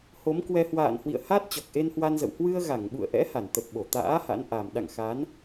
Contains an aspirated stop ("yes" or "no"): no